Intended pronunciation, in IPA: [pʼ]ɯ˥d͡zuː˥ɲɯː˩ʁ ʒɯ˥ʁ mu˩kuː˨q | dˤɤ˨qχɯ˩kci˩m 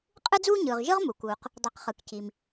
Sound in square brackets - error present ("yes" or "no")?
yes